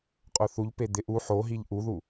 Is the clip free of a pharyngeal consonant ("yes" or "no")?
no